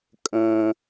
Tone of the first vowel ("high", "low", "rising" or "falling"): low